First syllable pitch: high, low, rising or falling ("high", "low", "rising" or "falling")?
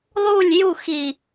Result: falling